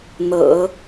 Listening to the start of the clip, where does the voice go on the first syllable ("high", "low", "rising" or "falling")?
low